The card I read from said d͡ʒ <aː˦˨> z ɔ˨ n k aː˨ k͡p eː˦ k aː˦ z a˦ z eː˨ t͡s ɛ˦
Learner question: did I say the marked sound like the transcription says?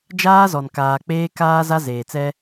no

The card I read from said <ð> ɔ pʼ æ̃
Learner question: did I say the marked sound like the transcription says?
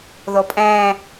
yes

